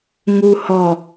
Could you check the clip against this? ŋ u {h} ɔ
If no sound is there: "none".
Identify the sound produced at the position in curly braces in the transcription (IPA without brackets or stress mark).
h